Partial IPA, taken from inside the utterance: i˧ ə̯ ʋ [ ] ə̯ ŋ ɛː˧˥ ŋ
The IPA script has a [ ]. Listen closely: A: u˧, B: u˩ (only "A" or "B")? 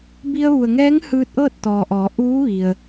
B